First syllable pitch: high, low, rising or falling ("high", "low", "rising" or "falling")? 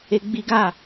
high